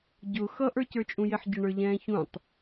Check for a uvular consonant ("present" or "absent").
absent